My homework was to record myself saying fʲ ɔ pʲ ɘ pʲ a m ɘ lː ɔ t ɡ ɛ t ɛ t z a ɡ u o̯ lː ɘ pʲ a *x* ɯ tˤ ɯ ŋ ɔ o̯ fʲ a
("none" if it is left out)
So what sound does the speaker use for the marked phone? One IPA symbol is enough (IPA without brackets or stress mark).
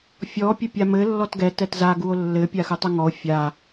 x